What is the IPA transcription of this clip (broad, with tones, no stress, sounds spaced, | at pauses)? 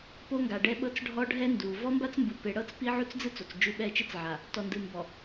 p o˦ ŋ ɡ a˨ ɖ ɛ˦ ɓ ɤ˦ t͡s ɖʱ ɔ˦ ɖʱ ɛ˦ n d u˨ v ɔ˦ m b a˦ t͡s m b ɯ˨ p e˨ ɽ ɤ˦ t͡s p i˦ ʕ u˦ t͡s d͡z ɯ˦ t͡s o˨ t͡s d͡ʒ u˦˨ ɓ ɛ˦˨ t͡ʃ ɯ˦ t͡s ʕ a˨ | t ɔ˨ n d ɯ˨ m b ɔ˨